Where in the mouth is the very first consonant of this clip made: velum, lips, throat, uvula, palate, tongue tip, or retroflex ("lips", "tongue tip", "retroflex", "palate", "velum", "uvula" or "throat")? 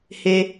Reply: throat